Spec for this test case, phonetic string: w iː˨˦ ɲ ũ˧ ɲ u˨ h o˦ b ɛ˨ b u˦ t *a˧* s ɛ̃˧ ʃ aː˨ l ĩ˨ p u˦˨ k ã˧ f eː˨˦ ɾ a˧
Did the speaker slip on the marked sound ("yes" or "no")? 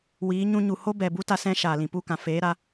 no